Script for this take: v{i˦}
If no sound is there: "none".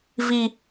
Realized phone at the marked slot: i˦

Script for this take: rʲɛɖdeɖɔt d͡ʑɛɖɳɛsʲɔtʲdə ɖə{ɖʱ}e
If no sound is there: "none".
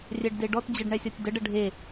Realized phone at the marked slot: ɖʱ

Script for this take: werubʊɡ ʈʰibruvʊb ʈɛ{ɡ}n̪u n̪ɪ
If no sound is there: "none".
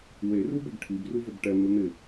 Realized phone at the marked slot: none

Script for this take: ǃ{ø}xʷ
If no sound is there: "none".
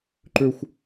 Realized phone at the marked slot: ø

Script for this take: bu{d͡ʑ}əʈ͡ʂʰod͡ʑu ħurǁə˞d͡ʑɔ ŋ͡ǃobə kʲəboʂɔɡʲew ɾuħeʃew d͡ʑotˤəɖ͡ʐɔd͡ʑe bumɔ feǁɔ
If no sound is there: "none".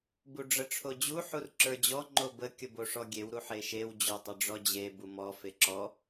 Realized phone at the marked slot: ɖ͡ʐ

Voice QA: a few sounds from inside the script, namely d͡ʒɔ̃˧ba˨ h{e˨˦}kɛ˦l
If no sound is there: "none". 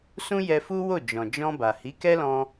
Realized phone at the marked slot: i˨˦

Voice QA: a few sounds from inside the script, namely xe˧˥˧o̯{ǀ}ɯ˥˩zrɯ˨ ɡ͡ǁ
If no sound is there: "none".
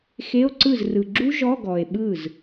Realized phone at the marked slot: ǀ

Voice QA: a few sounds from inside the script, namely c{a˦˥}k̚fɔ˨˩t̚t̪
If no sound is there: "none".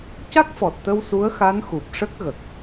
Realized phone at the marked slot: a˦˥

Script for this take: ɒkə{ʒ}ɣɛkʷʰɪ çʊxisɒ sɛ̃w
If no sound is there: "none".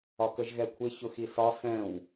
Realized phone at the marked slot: ʒ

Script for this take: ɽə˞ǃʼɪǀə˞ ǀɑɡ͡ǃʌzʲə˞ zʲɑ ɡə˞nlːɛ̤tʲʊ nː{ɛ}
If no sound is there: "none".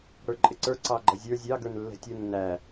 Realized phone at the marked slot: æ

